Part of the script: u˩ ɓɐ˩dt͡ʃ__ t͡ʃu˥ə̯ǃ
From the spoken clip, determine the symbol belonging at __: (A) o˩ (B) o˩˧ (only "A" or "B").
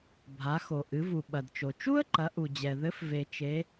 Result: A